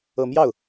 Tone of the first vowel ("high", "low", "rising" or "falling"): low